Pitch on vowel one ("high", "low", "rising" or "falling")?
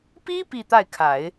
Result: high